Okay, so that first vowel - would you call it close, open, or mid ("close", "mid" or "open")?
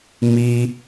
close